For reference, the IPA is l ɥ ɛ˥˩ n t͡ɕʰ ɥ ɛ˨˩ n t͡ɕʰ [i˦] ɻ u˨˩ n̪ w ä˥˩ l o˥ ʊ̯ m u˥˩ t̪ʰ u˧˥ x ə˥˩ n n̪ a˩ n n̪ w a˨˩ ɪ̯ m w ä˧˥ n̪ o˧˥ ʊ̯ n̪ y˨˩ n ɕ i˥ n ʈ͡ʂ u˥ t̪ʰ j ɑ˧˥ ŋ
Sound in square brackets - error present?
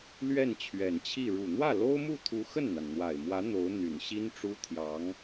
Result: yes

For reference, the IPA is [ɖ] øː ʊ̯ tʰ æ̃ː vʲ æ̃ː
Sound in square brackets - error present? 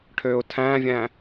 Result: yes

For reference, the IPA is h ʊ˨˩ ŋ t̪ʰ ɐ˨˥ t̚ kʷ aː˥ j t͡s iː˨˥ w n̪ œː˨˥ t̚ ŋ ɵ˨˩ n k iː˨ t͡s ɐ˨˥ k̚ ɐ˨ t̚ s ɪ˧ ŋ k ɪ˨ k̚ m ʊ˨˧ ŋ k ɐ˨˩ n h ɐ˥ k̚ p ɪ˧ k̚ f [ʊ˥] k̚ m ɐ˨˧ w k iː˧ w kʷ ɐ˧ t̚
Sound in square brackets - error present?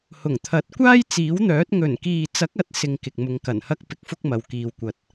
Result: no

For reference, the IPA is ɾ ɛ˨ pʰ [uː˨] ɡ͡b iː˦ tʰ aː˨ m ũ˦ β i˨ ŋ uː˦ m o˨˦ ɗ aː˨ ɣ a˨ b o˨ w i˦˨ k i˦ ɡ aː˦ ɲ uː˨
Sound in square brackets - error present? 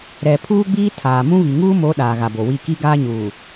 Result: yes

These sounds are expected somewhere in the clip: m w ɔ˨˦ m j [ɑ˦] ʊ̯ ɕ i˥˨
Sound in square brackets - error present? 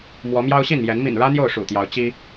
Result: no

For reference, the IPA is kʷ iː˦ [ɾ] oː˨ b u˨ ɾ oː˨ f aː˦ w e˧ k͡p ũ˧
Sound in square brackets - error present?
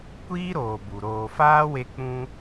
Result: no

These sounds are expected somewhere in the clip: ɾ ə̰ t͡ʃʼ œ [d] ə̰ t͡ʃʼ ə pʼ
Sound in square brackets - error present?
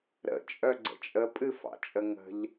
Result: yes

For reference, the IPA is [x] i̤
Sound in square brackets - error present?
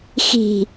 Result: no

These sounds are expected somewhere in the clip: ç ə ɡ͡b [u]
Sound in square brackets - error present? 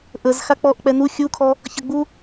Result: no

